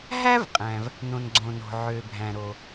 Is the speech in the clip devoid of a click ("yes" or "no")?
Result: no